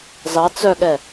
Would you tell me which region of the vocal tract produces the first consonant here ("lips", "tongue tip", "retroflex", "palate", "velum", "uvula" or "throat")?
tongue tip